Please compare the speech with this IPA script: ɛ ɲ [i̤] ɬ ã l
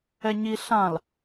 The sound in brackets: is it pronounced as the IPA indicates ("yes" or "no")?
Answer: no